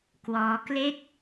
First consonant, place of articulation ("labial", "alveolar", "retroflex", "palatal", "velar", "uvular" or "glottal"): velar